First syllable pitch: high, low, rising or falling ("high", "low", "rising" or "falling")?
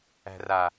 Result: low